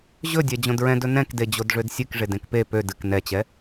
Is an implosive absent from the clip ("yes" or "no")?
yes